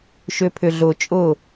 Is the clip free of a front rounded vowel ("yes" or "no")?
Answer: no